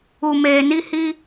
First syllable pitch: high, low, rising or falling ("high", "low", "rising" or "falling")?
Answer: low